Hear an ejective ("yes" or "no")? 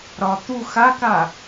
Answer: no